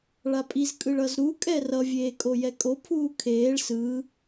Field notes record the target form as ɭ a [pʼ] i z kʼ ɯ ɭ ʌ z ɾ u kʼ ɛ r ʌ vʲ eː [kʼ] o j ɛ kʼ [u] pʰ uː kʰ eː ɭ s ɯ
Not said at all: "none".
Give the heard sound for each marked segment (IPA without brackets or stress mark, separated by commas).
pʼ, kʼ, o